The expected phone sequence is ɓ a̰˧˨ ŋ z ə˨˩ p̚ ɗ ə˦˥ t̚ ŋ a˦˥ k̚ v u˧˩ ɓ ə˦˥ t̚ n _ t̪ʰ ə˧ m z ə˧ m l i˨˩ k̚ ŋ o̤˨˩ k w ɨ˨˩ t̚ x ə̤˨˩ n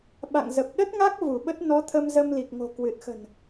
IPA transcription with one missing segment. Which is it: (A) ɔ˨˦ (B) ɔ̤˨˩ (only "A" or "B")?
A